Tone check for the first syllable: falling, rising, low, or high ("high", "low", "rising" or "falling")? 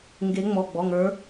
rising